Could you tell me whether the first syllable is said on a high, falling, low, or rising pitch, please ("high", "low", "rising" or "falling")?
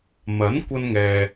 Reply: rising